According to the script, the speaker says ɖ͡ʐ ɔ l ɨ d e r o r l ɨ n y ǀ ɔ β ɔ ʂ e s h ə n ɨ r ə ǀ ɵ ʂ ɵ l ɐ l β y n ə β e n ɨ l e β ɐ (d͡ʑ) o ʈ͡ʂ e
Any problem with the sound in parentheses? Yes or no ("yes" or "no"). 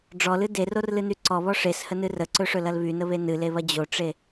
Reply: no